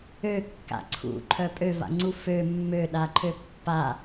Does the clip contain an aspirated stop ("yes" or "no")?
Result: yes